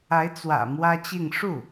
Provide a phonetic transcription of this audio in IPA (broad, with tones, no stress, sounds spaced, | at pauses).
a˧˥ ɪ̯ t͡s w ä̰˨˩ m w ä˥ t͡ɕ i˥˧ ŋ ʂ u˥˩